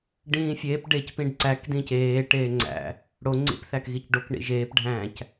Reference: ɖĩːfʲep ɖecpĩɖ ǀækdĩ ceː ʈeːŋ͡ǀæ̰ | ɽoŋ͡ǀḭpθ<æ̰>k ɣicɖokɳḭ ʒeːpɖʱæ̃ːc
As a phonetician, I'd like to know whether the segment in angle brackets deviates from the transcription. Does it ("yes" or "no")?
yes